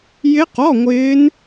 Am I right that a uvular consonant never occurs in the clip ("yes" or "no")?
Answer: no